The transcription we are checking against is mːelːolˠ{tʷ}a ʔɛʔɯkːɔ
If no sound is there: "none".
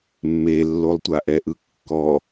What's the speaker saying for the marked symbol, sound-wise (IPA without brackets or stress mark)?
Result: tʷ